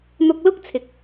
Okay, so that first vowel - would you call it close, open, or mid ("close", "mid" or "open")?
close